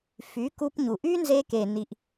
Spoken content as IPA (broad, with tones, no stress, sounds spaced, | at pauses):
f y˨˦ k u˧ p ɲ u˨ ʔ y˦ n z e˧ k e˨ n i˨ ʔ